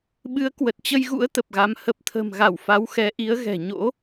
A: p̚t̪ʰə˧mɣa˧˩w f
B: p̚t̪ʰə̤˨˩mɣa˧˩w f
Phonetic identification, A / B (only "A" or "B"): B